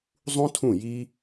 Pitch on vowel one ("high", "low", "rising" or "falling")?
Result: high